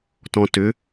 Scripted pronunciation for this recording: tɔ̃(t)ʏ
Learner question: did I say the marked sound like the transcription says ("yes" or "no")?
yes